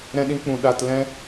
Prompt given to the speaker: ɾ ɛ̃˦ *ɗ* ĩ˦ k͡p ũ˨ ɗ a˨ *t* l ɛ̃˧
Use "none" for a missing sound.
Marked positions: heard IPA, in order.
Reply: ɗ, t

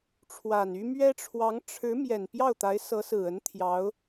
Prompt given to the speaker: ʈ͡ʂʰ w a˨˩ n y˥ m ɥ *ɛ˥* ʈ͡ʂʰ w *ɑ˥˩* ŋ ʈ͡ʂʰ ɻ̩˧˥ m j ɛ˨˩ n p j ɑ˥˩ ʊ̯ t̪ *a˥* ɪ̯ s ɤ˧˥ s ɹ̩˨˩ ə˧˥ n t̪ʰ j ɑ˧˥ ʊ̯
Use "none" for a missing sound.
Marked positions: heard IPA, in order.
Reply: ɛ˥, ɑ˧˥, a˧˥

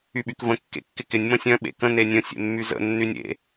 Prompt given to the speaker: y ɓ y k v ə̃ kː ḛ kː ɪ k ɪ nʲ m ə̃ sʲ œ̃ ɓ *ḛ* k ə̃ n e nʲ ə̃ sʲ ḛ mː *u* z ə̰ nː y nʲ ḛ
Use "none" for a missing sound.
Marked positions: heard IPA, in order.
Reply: ḛ, y

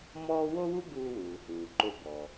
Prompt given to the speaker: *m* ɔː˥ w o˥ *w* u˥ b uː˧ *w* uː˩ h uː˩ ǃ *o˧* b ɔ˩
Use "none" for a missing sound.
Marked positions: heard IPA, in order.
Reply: m, w, w, o˧

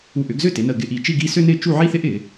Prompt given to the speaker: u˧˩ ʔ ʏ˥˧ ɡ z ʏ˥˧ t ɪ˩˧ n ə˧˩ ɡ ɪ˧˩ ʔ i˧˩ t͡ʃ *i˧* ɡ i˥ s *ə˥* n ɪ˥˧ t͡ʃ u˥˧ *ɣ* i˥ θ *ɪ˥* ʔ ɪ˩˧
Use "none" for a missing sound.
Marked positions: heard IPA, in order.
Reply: i˥˧, ʏ˥, ʕ, ɪ˥

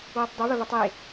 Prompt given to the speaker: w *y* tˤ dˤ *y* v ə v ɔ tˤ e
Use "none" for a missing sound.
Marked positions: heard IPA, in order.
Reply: y, y

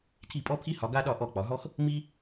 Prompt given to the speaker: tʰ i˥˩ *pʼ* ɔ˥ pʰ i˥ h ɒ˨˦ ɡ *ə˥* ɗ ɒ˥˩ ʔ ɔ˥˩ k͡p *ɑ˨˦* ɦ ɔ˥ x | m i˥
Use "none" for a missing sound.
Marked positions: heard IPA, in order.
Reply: pʼ, a˥, ɒ˨˦

